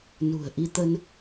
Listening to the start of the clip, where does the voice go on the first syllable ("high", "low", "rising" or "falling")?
low